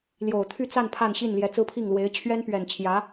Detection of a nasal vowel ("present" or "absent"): absent